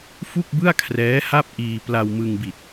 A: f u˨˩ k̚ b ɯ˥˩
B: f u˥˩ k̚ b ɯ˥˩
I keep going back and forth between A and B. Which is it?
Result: B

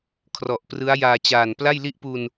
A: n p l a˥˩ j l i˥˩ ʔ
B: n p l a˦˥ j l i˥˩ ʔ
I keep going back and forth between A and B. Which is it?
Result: A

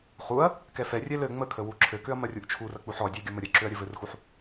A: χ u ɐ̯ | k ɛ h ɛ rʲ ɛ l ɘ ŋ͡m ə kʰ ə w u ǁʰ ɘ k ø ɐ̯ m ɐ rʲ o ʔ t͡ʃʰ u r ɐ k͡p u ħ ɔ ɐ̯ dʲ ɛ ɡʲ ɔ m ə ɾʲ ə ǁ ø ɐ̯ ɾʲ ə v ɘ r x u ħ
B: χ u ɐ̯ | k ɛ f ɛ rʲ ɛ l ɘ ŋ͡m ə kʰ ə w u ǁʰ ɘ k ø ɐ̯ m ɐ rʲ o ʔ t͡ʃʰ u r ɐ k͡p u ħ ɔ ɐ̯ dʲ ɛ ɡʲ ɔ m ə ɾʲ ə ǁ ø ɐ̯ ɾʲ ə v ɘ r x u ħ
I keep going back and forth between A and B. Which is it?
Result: B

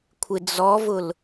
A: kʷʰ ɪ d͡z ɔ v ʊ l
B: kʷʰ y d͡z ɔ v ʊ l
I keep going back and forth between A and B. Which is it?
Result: A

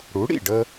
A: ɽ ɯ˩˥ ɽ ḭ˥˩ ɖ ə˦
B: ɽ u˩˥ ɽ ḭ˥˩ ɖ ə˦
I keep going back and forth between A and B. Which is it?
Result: B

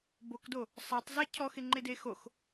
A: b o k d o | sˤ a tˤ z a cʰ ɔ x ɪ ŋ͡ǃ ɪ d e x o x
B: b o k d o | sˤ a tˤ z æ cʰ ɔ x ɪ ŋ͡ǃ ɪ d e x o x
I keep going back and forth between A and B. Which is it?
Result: A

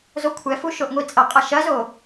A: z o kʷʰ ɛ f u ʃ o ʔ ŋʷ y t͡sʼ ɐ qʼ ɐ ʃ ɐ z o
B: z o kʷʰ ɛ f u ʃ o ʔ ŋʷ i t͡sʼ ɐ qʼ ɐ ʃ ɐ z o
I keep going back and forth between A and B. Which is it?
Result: B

